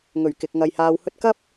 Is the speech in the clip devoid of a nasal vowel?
yes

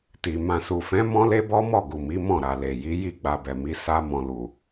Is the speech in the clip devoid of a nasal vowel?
no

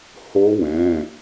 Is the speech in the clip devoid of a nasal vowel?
no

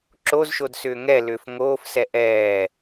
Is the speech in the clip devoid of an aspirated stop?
yes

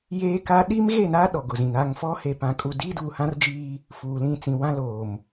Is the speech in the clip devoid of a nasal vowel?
no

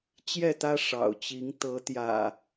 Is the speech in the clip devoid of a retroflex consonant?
no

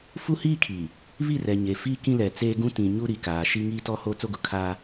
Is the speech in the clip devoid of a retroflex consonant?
yes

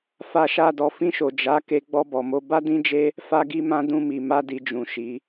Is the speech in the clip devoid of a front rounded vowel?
yes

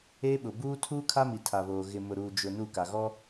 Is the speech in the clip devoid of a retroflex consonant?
yes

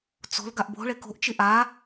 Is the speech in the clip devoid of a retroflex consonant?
no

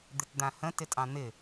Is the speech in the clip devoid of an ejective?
no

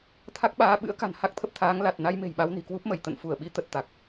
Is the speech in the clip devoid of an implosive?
no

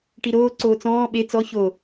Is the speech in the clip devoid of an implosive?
no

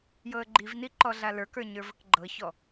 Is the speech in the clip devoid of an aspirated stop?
yes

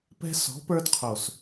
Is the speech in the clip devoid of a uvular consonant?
no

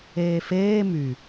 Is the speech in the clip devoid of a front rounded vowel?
no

